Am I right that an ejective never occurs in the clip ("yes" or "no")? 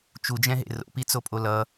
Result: no